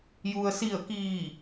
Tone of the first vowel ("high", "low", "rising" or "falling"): low